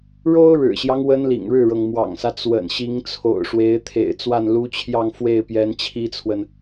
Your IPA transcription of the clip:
ɻ o˥ ʊ̯ ɻ ɻ̩˨˩ ɕ j ɑ˦ ŋ w ə˥ n l ḭ˨˩ ŋ ɻ ɻ̩˥˩ ɻ ɤ˩ ŋ m w ɑ̰˨˩ ŋ s ä˦ t͡s w ə̰˨˩ n ɕ i˧˥ ŋ t͡sʰ o̰˨˩ ʊ̯ ʂ w e˧˥ ɪ̯ t̪ʰ ḛ˨˩ ɪ̯ t͡s w a˥˩ n l u˧˥ t͡ɕʰ j ɑ˥˧ ŋ f w e˥˩ ɪ̯ p j ɛ˧˥ n t͡ɕʰ i˥ t͡sʰ w ə˨ n

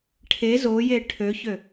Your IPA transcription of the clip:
ʈʰ e z o j e ʈʰ ø ç ø

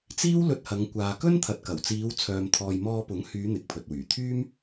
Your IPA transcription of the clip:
t͡s iː˥ w l ɵ˧ t̚ h ɐ˨˧ ŋ kʷ aː˨ k ɵ˥ n t̪ʰ ɐ˨ t̚ k ɐ˨˩ w t͡s iː˨˧ w t͡sʰ œː˨ m t̪ʰ ɔː˨ j m ɔː˧ p ʊ˨˥ ŋ h yː˨˧ n̪ ɪ˨ k̚ pʰ ɵ˨ t̚ w yː˨˩ t̪ʰ yː˥ m

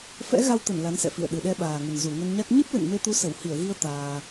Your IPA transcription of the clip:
f ɛ̰˧˥ ɣ a˧ w t̪ ə˧˩ n l a˨˦ n s ɛ̰˧˨ f ḭ˧˨ ə̯ ɗ ɨ˨˩ ɗ ɛ˧ ɓ aː˨˩ ŋ ə˨˩ n z u˧˩ ŋ ə˧ n ɲ a˦˥ k̚ ɲ ɨ˦˥ p̚ l ɨ̰˧˨ n m e˧ t̪ u˨˦ s ə˧˩ w h i˧˩ ə̯ ɣ i˧ ə̯ t̪ aː˧

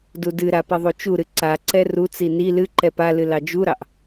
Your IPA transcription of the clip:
d u d ɨ ɾ a p i ðˤ u t͡ʃ u ɾ ɨ ǀ a ǀ ɛ r u t͡s i n i l ɨ ǃ ɛ p a l ɨ l ɑ d͡ʒ u ɾ ɑ ʔ

